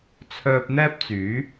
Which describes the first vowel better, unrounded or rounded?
rounded